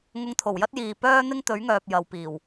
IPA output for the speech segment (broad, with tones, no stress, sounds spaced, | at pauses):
ŋ ʊ˧ ŋ t̪ʰ o˨˩ w j ɐ˥ t̚ j iː˨ p œː˥ n̪ ɪ˥ ŋ t̪ ɵ˨˥ ɥ ŋ œː˨ p̚ j ɐ˨ w p iː˨˩ w